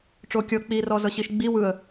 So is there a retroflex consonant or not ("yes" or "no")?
yes